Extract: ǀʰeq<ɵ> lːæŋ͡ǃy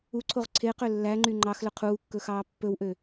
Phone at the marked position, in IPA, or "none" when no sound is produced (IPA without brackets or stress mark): ø